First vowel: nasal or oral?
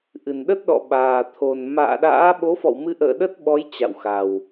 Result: oral